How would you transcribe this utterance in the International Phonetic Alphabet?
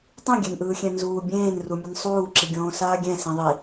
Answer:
tˤ ĩ ɡʲ ɛ n ʔ ɯː xʲ ɛ̃ n z uː bʲ ẽː n r u mʲ ʌ n sˤ uː ǁ i ɡʲ õː s aː ɡʲ ɛ̃ s ĩ ðˤ i

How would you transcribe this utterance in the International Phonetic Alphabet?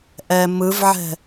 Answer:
ʔ ɛ m ɯ v ʕ ɛ̤

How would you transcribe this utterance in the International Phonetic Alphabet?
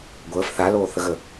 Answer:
ɡʷ əː f θ a l oː θ ə ɣ ə

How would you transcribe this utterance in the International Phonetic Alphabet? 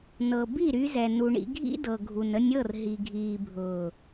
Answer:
n ɤ˨ b i˦˨ ɾ y˧ z ɛ˨ n u˧ ɳ ḭ˦ ɡʱ ḭ˦ d ɤ˨ ɡʱ u˨ n ə˧ nʲ ɤ˦˨ r ɦ i˨ ɡʱ iː˨ bʱ ʊː˨

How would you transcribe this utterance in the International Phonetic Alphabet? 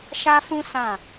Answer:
ʃ a˦ f ũ˦ s ã˦˨

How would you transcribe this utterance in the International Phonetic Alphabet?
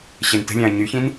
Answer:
ɕ e n t ə̤ lʲ ã ɐ̯ ɲ y ç ĩ n

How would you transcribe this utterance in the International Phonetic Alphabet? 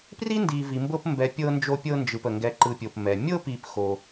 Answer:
p r i˥ n d i˨ v i˨ m b ɤ˦ p m b ɛ˨ pʲ ɤ˦ n d͡ʒ o˦ pʲ ɤ˦ n d͡ʒ ɯ˨ p ə˩ ŋ ɡ ɛ˨ ǃ ɯ˨ pʲ o˩ p m ɛ˩ mʲ ɤ˦ p i˨ p x o˨

